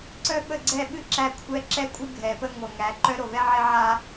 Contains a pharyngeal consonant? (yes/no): yes